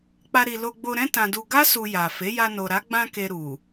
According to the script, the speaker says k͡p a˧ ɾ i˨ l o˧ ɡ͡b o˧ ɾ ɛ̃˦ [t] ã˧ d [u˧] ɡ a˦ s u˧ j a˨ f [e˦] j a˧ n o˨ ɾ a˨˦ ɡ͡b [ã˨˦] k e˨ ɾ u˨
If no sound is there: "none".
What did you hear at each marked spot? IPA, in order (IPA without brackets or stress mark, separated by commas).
t, u˧, e˨˦, ã˧